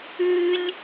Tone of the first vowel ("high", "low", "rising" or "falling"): high